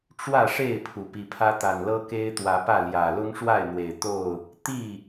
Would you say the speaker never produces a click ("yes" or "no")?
yes